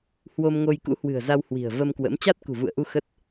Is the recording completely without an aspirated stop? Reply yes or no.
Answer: yes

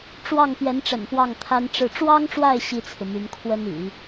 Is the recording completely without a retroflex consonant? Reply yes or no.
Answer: no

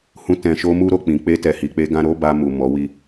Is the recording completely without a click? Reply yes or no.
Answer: yes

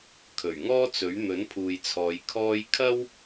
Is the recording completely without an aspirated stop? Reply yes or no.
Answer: no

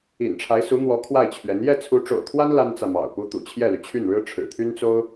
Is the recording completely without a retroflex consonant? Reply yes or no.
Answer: no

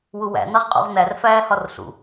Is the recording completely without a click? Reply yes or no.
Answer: yes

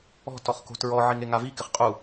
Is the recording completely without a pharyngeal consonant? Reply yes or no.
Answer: no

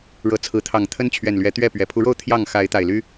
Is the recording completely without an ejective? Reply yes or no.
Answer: yes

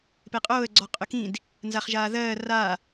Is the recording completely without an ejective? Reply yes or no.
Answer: no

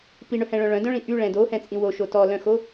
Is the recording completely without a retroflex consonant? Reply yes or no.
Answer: no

